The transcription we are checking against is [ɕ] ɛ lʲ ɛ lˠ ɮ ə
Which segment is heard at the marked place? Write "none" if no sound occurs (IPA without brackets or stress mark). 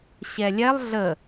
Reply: ɕ